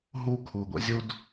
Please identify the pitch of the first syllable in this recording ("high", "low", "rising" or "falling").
high